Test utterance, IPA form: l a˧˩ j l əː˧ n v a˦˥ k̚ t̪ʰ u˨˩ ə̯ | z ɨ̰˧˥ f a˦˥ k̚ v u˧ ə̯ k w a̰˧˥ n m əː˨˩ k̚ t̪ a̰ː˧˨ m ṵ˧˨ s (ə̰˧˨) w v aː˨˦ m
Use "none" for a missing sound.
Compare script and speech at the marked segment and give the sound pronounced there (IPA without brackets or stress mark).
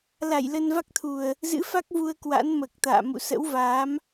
ə̰˧˥